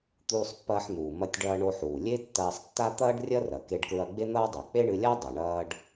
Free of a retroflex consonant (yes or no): no